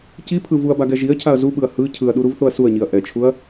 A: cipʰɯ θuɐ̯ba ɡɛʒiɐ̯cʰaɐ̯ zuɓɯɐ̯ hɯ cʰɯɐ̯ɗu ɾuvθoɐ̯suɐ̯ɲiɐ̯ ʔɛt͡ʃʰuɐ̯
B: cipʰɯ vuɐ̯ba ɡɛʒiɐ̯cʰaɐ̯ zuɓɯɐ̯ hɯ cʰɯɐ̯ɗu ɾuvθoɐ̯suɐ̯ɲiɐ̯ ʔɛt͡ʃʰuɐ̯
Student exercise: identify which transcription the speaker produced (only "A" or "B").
B